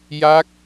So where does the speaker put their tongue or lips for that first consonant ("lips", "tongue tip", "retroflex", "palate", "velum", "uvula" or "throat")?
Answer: palate